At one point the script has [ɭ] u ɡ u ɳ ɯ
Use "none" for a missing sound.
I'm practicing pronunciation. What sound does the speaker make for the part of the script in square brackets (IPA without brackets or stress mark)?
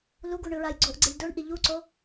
l